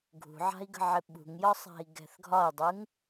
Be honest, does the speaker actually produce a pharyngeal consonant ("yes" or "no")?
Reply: yes